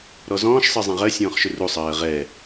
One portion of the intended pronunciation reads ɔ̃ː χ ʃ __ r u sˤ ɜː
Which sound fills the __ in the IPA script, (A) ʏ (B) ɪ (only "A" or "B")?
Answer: A